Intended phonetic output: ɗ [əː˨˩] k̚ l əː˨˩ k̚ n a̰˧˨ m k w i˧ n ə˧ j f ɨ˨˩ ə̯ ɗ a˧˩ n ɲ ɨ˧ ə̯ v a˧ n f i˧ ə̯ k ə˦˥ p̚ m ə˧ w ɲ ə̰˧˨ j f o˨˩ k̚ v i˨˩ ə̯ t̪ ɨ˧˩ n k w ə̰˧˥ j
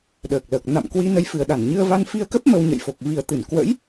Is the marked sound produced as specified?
yes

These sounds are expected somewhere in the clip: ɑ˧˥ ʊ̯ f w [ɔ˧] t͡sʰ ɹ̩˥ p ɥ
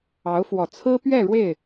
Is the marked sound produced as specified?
no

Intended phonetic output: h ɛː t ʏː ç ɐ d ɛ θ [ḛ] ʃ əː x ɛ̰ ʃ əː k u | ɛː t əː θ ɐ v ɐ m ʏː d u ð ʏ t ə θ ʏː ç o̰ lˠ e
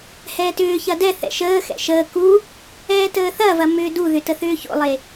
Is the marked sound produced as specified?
no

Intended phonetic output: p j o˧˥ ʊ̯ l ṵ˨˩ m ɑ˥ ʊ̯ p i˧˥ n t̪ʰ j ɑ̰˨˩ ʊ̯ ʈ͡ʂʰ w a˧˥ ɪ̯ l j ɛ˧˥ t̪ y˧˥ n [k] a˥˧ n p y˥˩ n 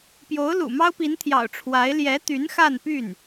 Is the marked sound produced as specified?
no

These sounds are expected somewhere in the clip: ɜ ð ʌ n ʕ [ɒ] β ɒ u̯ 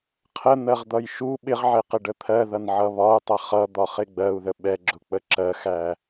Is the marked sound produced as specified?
no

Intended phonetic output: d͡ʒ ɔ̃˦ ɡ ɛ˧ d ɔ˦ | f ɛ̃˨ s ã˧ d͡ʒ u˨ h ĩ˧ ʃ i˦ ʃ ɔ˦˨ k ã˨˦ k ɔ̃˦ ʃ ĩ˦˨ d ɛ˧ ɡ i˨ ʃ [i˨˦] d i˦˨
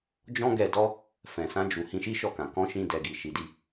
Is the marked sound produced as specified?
yes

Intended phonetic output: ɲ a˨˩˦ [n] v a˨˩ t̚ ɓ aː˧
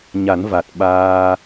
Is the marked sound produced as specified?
yes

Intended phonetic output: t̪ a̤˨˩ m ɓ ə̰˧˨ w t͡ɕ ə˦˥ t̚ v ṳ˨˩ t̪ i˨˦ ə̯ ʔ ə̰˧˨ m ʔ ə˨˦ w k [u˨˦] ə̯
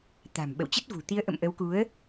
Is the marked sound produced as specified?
yes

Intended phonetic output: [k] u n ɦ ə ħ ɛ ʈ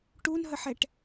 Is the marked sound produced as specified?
no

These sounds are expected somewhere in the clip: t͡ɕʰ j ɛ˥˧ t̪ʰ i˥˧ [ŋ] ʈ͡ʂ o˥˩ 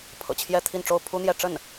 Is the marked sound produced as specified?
no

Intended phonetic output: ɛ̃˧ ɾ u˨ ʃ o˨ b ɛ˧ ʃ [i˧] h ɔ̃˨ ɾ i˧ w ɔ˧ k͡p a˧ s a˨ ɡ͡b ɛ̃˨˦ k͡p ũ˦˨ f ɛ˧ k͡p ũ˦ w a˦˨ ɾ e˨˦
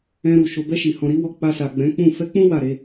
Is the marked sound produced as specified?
no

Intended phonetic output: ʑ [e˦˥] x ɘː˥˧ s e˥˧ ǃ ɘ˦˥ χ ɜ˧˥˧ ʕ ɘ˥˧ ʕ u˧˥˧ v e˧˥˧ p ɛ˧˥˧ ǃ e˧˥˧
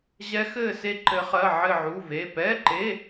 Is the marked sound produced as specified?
no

